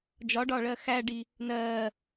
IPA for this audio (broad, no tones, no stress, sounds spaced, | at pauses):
d͡ʒ ɒ ɖ ɒ ɭ ɜ x æ ɖ i | n ɜː